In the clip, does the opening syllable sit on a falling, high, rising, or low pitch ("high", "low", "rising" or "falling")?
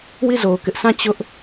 falling